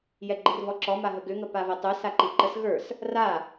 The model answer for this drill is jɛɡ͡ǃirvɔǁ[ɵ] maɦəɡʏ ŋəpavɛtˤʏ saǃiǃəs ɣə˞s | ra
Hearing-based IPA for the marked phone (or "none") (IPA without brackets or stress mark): ɔ